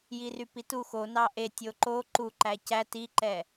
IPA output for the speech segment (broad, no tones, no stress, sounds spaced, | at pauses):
j i r y p i t u x o n ɑ ʔ e tʲ o ǃ o ǃ u ǃ æ c æ t i ǃ ɛ